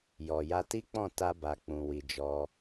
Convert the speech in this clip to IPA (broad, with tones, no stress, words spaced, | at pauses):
jɔ˨ja˧ti˦k͡pɔ̃˦˨ ta˧ba˨ k͡pũ˨wi˨d͡ʒɔ˧